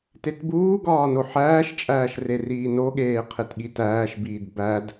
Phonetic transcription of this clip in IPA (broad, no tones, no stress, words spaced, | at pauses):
tetbuːɡɒː noħæːʃt͡ʃʼæːʃ reriːnoɠeː qʰetɠitæːʃbiːd bæd